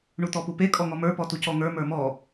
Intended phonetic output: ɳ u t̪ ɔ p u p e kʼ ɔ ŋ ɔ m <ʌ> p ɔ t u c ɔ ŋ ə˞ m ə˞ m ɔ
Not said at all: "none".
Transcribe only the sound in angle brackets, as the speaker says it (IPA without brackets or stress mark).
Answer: ə˞